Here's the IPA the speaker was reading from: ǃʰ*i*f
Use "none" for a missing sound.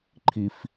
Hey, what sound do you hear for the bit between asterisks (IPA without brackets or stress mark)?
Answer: i